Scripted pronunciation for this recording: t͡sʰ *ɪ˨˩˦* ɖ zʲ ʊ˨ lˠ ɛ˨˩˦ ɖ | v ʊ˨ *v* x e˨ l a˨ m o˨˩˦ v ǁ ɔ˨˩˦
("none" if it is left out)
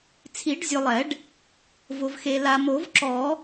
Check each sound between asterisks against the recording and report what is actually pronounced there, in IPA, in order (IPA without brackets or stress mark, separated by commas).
i˨˩˦, v